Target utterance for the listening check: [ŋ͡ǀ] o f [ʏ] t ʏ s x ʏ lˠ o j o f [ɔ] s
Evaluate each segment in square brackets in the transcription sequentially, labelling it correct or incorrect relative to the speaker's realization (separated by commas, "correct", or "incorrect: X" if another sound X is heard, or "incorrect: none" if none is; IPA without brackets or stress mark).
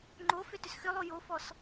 incorrect: ŋ͡ǃ, correct, correct